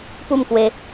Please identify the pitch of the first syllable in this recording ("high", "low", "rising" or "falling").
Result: falling